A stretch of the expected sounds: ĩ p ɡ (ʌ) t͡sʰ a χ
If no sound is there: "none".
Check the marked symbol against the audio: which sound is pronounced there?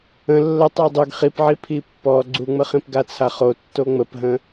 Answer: a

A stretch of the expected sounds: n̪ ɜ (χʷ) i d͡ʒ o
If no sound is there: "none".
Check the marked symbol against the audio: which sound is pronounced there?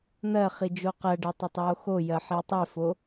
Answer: χ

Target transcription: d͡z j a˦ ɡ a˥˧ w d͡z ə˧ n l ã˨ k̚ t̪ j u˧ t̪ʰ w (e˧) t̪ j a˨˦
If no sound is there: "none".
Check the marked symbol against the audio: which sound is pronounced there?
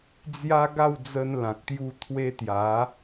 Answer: e˧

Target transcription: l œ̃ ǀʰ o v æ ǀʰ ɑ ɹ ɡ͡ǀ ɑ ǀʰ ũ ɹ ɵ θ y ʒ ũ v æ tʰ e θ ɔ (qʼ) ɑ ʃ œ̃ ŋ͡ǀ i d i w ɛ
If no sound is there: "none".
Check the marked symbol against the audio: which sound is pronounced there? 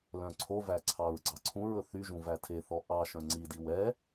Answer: ʔ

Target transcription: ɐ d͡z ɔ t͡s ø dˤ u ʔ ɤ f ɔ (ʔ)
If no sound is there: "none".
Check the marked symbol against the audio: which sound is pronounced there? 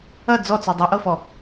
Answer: none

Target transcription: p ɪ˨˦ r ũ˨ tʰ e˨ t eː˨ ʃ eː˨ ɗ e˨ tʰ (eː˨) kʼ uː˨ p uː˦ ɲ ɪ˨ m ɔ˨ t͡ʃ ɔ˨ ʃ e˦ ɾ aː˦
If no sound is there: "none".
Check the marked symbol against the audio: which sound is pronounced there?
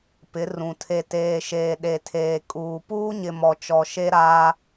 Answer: eː˨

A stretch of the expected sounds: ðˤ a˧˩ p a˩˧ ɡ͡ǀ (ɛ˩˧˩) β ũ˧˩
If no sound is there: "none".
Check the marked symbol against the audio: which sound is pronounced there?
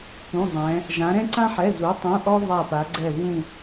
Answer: ɛ˧˩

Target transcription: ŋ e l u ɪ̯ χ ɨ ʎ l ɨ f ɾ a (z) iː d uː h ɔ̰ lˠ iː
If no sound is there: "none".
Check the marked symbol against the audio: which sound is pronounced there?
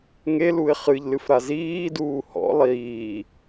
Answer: z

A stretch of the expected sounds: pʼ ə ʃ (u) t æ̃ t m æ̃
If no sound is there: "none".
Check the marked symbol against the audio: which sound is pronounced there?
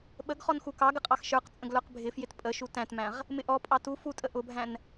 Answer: u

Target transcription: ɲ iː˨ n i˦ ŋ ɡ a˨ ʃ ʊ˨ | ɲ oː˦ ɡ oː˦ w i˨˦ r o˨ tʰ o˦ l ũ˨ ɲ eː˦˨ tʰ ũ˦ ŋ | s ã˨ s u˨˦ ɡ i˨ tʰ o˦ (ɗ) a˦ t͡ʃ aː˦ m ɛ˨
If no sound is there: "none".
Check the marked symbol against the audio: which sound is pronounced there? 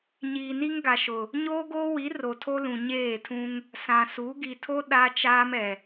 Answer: ɗ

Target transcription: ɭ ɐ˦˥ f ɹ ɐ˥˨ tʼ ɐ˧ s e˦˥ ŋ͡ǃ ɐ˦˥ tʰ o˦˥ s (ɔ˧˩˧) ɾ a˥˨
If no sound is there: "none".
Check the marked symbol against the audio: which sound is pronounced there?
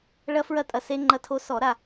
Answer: ɔ˧˩˧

